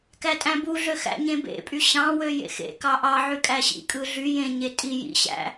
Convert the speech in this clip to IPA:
kætʼæ̃buɮø xæ̰ɲẽbḛpʼy ɕɑ̃wø jḛxḛ kɑʔɑ ʕykʼæɕḭ kʼɯɮy jẽ ɲetʼi jḭɕæ̰

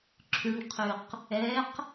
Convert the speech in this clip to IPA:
ǁʰyɳqʰʉq | ɛq

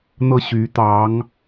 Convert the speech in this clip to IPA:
n̪ɤ˥˩ɕy˧˥ t̪ɑ˧˥ŋ

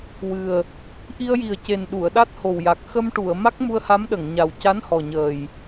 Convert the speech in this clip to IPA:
wɨ˨˩ə̯ | ʔi˧ə̯ji˨˩ə̯ce˨˩n ɗu˨˩˨ə̯ ɗa˦˥t̚ho˨˩wja˨˩k̚ xə˧mʈu˨˩˨ə̯ ma˦˥k̚mu˧ə̯ha˧˥mɗə˨˩˨ŋ ɲa˨˩wca˧˥nhɔ˨˩ɲəː˨˩j

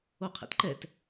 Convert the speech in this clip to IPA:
oqʰɛ̰tǃɛt

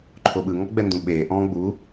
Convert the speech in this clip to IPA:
ǃʰoɓɯ ŋɔɡ͡bɛndũɓeː ʔɔ̃ːɡ͡bu

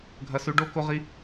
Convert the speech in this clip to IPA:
ɡʱɐ˥sʉ˥ ɖo˥ ko˥ʁi˥

